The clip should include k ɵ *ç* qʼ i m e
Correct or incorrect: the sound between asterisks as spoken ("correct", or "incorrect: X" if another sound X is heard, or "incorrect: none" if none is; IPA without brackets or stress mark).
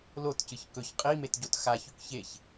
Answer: correct